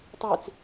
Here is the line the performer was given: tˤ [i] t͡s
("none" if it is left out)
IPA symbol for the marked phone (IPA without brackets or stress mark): i